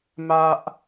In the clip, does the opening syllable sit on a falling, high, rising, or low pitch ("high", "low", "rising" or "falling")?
high